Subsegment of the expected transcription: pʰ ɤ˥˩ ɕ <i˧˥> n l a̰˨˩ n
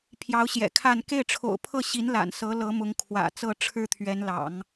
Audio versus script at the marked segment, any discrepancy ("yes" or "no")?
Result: no